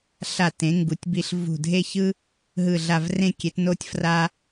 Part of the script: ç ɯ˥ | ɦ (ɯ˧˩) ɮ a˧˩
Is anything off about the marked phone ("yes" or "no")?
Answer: no